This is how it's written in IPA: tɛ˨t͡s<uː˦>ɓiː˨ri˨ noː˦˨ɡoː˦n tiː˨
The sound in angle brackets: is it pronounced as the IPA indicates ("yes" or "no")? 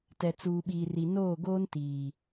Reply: no